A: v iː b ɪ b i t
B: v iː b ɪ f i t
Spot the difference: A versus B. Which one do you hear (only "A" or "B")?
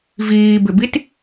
A